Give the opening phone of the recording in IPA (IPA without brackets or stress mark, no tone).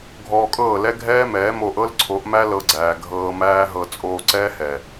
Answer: ɡʱ